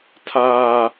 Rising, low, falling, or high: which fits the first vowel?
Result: high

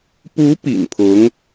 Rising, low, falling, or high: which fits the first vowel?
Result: rising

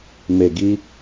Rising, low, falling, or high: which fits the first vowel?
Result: low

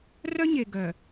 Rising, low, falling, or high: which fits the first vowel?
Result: high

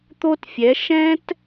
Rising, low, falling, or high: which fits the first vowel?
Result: high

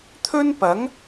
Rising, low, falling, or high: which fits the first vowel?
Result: high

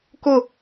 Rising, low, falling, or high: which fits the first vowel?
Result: falling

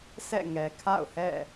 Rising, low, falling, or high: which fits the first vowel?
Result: falling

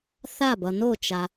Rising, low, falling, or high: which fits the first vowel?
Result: falling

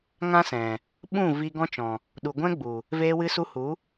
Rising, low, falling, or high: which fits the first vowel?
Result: high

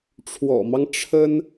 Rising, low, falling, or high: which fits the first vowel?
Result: low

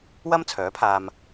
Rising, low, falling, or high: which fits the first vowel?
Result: high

